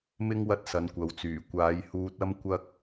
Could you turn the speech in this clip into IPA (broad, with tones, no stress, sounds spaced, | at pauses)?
m ɪ˥ ŋ w ɐ˥ t̚ s ɐ˨˧ n kʷ ɐ˨˧ w t͡s yː˨˩ kʷ aː˨˧ j h uː˧ t̚ ɐ˥ m kʷ ɐ˥ k̚